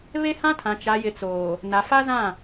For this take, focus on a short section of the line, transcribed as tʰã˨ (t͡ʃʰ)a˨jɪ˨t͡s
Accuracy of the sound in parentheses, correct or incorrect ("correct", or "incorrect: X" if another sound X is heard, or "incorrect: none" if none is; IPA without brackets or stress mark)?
incorrect: t͡ʃ